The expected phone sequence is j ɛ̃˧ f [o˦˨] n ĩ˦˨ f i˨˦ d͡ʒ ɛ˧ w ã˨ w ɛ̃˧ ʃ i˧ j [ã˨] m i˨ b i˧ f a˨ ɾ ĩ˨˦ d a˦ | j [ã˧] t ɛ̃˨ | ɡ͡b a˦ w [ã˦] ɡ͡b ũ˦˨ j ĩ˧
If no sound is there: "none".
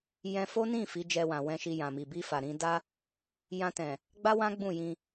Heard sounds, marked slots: o˦, ã˨, ã˧, ã˦

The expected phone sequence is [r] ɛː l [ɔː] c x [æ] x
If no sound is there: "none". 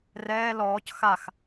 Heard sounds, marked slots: r, ɔː, a

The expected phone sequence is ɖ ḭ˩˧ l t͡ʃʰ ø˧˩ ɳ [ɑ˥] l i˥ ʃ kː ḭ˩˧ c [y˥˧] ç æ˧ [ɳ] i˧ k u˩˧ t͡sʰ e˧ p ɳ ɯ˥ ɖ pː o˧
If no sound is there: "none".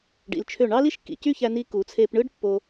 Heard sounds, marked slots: ɑ˥, y˥˧, n

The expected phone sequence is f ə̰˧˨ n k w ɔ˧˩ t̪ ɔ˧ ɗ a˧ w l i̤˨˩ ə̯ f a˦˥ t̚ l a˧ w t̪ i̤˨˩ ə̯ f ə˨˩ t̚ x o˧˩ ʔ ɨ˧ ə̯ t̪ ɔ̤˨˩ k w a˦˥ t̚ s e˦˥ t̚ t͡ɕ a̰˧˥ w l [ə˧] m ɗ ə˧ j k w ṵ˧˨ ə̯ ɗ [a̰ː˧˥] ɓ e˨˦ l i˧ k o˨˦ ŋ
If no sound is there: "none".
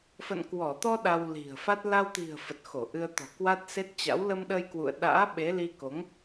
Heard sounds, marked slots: ə˧, a̰ː˧˥

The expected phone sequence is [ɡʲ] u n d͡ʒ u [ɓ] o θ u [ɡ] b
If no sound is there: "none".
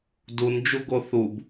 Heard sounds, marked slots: d, ɡ, none

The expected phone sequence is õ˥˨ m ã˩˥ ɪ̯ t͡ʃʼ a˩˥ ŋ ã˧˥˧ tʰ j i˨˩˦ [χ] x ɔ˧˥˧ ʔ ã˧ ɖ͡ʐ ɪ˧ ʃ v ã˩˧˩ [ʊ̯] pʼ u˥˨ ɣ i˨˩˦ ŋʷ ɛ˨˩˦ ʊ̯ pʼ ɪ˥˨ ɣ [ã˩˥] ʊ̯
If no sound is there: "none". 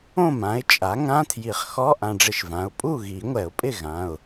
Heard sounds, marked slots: χ, ʊ̯, ã˩˧˩

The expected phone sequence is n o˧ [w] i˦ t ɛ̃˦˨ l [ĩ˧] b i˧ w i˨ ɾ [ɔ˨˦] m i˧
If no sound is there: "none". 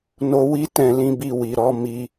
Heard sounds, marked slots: w, ĩ˧, ɔ˨˦

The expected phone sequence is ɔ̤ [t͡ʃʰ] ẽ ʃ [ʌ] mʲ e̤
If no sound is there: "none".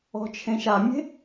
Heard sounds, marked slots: t͡ʃʰ, a

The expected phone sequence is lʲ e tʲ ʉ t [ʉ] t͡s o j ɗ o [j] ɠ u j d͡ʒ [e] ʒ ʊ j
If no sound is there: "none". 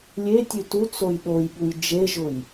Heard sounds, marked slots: u, j, e

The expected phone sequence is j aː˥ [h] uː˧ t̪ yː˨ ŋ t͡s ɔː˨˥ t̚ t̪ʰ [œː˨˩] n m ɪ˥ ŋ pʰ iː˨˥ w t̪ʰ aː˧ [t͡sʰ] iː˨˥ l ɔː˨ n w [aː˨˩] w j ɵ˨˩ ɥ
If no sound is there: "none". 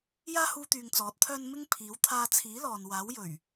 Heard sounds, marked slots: h, œː˥, t͡sʰ, aː˨˥

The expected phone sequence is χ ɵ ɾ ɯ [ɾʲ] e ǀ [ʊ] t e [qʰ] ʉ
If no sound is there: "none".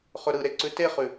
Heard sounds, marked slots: ɾ, ʉ, χ

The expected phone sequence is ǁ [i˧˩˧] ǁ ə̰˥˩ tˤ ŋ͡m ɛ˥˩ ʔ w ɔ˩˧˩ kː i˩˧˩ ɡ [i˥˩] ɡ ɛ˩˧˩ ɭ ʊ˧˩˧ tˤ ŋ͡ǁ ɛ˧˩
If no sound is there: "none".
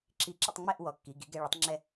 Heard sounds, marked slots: i˧˩˧, i˩˥

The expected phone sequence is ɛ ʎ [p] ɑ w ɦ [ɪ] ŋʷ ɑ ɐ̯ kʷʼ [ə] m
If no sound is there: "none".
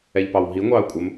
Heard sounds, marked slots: p, i, ə

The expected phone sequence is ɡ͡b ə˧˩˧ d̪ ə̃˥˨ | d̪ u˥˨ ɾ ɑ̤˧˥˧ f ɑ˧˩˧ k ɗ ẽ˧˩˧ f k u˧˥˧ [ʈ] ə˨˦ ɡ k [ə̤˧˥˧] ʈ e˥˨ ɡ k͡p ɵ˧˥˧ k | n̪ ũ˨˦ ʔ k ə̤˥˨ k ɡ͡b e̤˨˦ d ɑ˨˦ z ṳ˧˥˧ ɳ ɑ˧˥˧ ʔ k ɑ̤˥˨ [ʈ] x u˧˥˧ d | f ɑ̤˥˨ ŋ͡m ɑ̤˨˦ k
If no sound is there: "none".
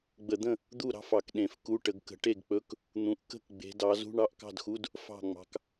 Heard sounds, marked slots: ʈ, ə̤˨˦, d

